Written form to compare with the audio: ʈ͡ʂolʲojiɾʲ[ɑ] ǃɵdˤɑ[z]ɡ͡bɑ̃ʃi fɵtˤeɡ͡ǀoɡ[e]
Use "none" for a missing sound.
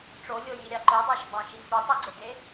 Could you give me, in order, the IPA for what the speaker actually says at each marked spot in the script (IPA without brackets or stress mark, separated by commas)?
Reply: ɑ, ʃ, e